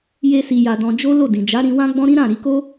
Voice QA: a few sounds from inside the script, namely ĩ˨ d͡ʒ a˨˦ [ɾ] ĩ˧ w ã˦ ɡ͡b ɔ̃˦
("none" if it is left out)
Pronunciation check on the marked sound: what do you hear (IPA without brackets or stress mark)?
ɾ